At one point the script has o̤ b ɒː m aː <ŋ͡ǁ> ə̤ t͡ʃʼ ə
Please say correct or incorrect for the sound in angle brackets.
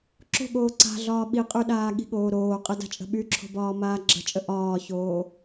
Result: incorrect